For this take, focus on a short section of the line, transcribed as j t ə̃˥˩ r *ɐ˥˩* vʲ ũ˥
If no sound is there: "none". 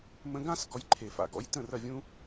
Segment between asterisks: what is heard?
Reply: ɐ˥˩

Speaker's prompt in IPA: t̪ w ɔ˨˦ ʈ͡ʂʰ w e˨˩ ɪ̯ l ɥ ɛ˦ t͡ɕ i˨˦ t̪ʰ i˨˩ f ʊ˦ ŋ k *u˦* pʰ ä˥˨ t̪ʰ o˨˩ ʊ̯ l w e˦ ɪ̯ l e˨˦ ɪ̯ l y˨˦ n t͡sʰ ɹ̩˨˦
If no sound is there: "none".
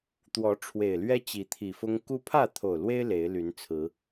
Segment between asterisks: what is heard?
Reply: u˦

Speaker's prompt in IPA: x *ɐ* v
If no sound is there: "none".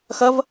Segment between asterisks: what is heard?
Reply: ɐ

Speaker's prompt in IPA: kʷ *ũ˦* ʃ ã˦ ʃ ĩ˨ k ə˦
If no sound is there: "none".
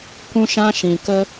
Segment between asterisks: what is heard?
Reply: ũ˦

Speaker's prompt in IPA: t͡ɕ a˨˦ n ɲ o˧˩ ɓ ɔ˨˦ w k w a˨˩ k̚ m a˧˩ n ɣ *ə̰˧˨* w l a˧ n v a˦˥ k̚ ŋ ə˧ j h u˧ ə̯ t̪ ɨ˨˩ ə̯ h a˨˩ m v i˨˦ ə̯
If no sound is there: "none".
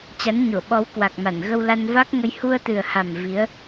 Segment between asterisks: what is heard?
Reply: ə˧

